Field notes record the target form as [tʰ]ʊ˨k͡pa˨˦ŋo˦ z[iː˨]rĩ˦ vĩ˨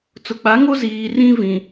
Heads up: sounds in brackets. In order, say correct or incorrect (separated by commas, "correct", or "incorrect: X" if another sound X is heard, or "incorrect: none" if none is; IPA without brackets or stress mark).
incorrect: t͡s, correct